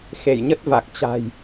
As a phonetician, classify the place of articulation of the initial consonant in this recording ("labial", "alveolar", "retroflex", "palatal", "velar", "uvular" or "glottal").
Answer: velar